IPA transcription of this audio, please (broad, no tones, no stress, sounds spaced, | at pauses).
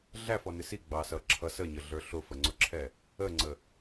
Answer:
ɮ æ f ɔ n ɪ s i ɡ͡b ɑ s ʌ ǁʰ ʌ s ə ɲ ə ɮ ə˞ ɬ ʊ f ə ŋ͡ǀ ʊ ǁʰ ɛ | ə ŋ͡ǀ ə